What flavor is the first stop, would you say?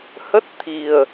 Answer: plain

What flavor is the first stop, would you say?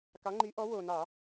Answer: plain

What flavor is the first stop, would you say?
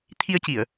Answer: aspirated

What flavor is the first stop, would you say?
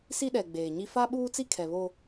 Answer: implosive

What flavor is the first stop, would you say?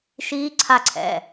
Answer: click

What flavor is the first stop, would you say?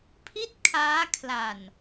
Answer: aspirated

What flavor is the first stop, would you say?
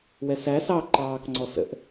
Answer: click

